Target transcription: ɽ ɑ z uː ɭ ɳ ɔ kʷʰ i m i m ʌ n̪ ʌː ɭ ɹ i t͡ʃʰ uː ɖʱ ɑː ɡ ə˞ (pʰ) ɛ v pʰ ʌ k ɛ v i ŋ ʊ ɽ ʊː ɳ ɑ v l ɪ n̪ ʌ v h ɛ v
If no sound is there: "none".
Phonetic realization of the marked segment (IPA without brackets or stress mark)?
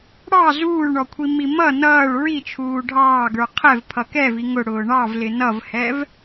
qʰ